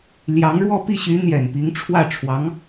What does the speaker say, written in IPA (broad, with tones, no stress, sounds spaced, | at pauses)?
l j ɑ˧˥ ŋ ɻ w ɔ˥˧ p i˥˩ ɕ y˧˥ n̪ j ɛ˨˩ n p i˧˥ ŋ ʈ͡ʂʰ w ä˥˩ ʈ͡ʂʰ w ɑ˧˥ ŋ